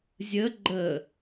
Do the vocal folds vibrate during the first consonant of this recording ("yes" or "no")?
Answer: yes